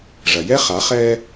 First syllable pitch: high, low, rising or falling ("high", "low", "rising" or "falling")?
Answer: low